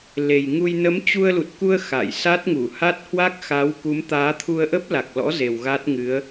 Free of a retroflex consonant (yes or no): yes